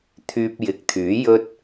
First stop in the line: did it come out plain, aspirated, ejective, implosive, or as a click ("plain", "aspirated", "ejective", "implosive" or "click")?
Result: aspirated